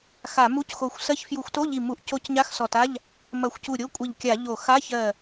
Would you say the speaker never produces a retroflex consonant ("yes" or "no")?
yes